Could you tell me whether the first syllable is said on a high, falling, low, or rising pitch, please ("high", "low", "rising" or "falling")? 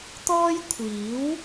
high